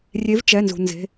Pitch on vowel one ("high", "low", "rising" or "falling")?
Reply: rising